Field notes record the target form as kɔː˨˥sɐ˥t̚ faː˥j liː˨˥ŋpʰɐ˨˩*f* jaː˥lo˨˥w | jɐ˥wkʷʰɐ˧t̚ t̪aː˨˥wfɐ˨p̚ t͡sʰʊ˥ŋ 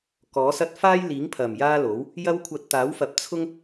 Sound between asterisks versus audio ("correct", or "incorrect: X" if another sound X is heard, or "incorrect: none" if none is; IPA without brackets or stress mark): incorrect: m